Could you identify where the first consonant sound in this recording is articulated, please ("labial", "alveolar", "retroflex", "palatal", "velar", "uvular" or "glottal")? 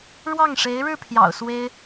retroflex